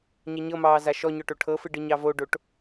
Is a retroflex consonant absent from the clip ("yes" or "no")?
no